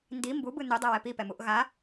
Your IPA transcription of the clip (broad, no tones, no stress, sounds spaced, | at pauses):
n d i m b u b ɯ n u dˤ ɛ w ɛ p i p ɛ m u ʔ ɣ a